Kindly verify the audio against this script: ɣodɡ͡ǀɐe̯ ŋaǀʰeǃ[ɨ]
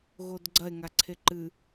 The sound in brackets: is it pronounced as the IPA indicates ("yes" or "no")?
yes